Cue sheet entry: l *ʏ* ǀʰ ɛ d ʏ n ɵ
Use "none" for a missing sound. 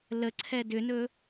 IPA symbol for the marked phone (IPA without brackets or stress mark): ə